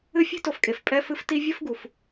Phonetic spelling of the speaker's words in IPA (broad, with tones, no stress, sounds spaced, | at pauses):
ɨ˦ fʲ e̤˥ t o˨ f kʼ e˩ f pʼ ɛ˦ f ɨ˦ f t i˥ vʲ ɘ˥ f ɡ u˩ f